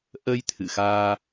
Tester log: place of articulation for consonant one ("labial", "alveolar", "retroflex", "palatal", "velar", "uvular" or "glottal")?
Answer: glottal